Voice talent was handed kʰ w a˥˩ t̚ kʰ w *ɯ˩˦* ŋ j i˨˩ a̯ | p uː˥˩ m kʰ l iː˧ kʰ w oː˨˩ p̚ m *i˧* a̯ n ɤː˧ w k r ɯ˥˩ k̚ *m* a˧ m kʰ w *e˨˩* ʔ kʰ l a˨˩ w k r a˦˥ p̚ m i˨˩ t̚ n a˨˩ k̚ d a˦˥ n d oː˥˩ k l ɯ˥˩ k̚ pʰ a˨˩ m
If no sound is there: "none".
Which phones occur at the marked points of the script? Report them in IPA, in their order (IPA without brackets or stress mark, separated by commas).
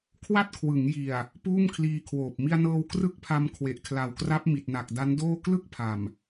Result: ɯ˩˦, i˧, pʰ, e˨˩